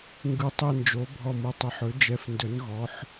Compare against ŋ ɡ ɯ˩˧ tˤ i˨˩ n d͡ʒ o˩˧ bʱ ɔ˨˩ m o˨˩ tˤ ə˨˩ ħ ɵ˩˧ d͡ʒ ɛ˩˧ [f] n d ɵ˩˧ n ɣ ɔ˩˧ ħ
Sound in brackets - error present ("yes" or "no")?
no